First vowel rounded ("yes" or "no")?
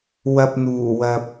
no